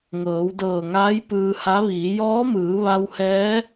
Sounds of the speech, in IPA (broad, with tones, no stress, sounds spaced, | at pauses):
ŋ ɤː˩˧ w d ɤː˧˩ ŋ aː˧˥ j p ɯː˧ h a˧˥ ʋ iː˩˧ j ɔː˧˥ m ɯː˩˧ ʋ a˧ w h ɛː˧˥